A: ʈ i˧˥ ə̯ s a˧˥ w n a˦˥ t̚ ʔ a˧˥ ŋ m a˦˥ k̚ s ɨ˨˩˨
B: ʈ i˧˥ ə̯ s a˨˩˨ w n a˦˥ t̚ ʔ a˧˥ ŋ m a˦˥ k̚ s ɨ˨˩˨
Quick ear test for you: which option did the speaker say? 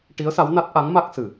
A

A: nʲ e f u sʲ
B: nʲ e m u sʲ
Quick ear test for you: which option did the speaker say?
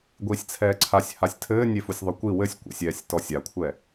A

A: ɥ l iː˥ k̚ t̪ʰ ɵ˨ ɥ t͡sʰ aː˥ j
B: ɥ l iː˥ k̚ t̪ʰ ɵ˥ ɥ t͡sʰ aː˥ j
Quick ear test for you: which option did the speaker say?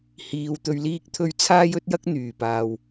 B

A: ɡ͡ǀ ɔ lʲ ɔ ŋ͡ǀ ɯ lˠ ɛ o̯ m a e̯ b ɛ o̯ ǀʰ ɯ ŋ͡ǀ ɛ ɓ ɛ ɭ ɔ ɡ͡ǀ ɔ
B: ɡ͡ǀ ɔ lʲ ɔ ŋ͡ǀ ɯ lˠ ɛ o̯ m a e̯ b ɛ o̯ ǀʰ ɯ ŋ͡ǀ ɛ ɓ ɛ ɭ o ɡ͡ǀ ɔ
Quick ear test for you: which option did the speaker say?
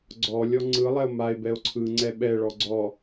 A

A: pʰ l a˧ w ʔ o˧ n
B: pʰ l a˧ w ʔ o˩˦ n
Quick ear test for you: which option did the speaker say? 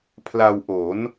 B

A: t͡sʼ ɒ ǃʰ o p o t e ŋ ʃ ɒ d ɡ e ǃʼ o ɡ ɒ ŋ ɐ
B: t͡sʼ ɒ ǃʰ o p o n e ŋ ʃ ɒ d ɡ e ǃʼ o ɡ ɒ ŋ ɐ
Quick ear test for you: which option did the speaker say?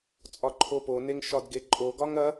B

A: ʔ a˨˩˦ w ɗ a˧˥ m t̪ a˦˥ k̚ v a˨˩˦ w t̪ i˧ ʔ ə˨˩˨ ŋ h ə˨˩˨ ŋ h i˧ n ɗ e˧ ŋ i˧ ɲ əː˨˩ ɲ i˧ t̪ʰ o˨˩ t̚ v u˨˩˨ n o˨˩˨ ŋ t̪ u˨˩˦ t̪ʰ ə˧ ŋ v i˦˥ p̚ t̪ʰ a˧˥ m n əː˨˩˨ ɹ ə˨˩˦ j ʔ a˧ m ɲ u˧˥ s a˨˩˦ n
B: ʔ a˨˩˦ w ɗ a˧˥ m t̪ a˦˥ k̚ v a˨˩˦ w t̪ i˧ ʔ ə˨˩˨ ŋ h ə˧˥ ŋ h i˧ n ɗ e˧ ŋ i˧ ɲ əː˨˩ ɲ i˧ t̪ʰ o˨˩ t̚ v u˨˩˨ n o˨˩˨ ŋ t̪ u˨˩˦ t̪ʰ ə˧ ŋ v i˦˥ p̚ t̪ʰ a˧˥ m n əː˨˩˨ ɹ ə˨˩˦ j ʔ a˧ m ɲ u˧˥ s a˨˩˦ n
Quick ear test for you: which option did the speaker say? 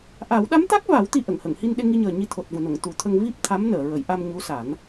A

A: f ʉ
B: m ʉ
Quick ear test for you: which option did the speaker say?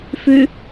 A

